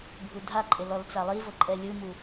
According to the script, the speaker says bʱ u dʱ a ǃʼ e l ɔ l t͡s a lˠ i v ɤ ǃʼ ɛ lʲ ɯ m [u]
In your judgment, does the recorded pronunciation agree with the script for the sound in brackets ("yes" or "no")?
yes